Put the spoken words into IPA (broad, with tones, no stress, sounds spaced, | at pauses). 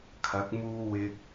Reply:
kʰ ɐ˨˥ k̚ m uː˧ w ɪ˧ k̚